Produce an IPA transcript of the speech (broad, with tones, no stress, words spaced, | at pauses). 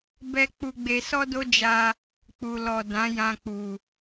bɛ˦ k͡pu˧ɡ͡be˧ sɔ˦do˦d͡ʒa˧ | k͡pu˨lɔ˨ dã˨˦jã˧k͡pu˨